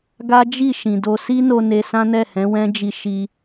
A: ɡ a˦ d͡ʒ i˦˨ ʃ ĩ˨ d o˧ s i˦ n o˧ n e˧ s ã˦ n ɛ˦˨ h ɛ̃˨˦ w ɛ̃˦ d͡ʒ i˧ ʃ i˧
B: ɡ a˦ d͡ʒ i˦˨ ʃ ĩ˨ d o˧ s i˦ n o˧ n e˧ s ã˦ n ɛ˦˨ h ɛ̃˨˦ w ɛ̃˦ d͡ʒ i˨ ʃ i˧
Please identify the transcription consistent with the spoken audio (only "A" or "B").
A